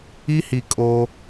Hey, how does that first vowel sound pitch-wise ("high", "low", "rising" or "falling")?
high